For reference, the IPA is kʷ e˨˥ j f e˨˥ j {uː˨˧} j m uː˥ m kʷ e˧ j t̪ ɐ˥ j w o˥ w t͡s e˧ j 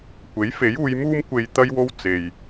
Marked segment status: correct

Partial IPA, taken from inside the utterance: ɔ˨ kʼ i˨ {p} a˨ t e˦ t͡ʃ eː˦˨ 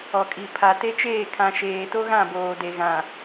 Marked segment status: incorrect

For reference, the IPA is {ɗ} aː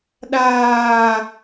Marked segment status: correct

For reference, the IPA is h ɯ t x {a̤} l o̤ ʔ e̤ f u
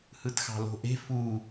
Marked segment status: incorrect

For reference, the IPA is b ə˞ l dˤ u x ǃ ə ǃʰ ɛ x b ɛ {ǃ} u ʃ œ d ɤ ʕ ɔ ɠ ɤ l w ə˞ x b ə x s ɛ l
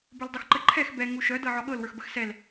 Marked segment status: incorrect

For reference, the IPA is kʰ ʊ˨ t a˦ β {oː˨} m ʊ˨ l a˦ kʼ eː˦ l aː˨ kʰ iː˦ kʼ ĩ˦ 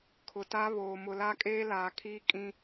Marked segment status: correct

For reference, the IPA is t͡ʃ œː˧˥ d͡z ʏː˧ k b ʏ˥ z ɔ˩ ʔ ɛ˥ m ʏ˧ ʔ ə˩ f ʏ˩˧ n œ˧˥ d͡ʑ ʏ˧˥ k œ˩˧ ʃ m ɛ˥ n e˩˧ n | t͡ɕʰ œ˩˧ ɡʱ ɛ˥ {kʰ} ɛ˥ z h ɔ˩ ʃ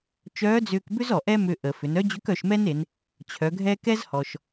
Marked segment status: incorrect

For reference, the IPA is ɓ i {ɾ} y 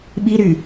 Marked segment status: correct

